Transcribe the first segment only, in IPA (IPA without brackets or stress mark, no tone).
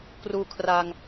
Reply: k